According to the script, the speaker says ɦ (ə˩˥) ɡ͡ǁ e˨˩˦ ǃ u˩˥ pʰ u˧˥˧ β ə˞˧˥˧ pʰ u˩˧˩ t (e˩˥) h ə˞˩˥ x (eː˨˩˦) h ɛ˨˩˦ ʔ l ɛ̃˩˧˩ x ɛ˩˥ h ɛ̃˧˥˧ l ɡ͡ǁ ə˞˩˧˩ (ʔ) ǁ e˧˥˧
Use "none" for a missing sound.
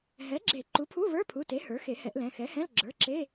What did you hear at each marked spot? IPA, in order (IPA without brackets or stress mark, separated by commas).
ɛ˩˥, e˩˥, e˨˩˦, none